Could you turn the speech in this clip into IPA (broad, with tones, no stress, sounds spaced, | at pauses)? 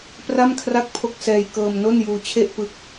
p r a˥˩ m kʰ r a˥˩ k̚ pʰ o˥˩ k̚ s ɛː˧ j k ɤː˧ m n o˥˩ n j uː˧ t͡ɕʰ e˥˩ ʔ p ɯ˦˥ k̚